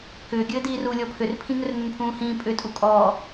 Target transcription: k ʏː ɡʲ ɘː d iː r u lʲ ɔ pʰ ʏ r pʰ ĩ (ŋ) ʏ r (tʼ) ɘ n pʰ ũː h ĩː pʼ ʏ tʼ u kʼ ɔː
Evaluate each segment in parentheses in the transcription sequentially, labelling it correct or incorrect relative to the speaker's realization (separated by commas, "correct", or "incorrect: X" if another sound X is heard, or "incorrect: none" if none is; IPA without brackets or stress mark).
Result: correct, incorrect: n